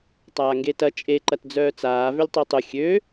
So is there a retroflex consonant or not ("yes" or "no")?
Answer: no